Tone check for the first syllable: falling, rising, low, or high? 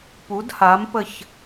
rising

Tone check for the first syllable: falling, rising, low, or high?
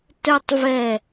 high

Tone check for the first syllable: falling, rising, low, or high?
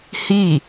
falling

